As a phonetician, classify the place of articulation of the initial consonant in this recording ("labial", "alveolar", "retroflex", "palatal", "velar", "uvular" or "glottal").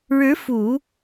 retroflex